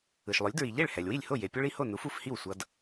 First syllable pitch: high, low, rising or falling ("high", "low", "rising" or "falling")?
low